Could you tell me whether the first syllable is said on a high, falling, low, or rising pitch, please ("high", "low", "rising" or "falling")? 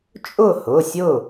falling